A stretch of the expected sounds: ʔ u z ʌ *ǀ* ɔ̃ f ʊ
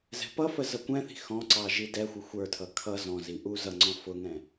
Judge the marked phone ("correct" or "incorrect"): incorrect